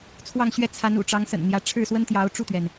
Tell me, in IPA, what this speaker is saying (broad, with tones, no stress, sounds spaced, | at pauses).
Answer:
t͡sʰ w ɑ˥˧ ŋ ɕ ɥ ɛ˥˩ t͡sʰ a˧˥ n ṵ˨˩ ʈ͡ʂ ɑ˧˥ ŋ s ə̰˨˩ n n̪ j ä˧˥ ʈ͡ʂʰ ɻ̩˥˩ s w ə˥ n t̪ j ɑ˧˥ ʊ̯ ʈ͡ʂ u˥˩ t̪ ɥ ɛ˩ n